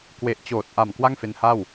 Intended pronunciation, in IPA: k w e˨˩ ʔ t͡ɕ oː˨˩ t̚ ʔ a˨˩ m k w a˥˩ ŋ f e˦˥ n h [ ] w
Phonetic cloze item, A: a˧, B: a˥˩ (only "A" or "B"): B